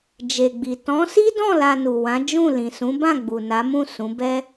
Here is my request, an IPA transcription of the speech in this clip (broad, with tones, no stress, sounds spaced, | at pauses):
d͡ʒ e˨ ɡ͡b i˨ t ɔ̃˨˦ s i˦ d ɔ̃˦˨ l a˧ n u˨ w ã˨˦ d͡ʒ ũ˦˨ l ĩ˨ s ũ˨˦ b ã˦˨ ɡ͡b u˨ n a˨˦ m ũ˦˨ s ũ˨˦ b ɛ˦